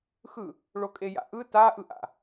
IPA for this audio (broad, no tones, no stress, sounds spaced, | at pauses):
x ɯ | ɭ o kʼ e j a̰ ʔ ɯ t a ʔ ɯ ʔ a̰